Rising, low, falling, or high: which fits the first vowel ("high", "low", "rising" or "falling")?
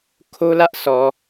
high